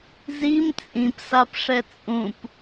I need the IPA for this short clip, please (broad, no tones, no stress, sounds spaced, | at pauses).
z i m t͡sʼ ĩ p s a p ʂ ɛ t͡sʼ ũ p